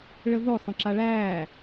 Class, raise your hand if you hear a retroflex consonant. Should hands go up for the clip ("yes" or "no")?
yes